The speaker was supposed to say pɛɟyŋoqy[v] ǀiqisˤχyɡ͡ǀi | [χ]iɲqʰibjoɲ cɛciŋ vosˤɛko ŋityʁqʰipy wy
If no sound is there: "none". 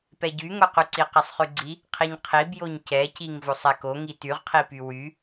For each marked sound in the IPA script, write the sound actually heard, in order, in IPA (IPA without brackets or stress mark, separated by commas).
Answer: none, qʰ